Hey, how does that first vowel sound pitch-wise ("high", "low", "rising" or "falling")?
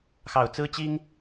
low